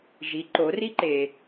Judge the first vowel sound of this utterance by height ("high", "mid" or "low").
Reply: high